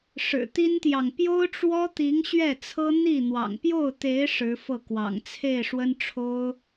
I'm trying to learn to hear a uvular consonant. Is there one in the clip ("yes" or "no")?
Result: no